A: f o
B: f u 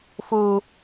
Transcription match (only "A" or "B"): B